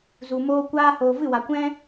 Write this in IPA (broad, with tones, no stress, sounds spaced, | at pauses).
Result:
z u˨ m oː˦ kʷ aː˦ h oː˨ v ɨ˦˨ w a˨ kʷ ɛ̃˦